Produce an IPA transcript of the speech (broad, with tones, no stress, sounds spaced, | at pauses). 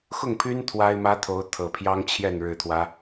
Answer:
x ʊ˥˩ ŋ pʰ y˥ n t̪ʰ w a˥ ɪ̯ m ä˥ t̪ʰ o˧˥ ʊ̯ t̪ʰ ɤ˨˩ pʰ j ɑ˥ ŋ t͡ɕʰ j ɛ˥˩ n ɻ ɻ̩˨˩ t̪ʰ w ä˦